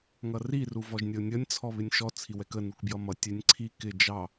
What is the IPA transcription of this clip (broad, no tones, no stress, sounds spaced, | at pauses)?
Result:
ŋ ʌ r i r u v ɔ ʒ nʲ ʌ ʊ̯ nʲ ʌ nʲ t͡sʰ ɔ β ɪ nʲ ʃ ɔ t͡sʰ i w ɛ k ə n u k b j ʌ m ʌ tʲ ɛ nʲ ǀʰ i k ɪ d͡ʒ ɑ